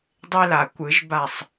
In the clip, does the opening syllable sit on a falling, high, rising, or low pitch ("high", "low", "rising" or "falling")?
high